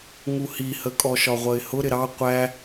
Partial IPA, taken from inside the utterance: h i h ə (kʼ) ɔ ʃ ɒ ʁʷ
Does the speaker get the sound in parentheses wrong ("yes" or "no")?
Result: no